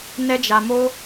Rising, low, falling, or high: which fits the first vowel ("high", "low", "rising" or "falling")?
high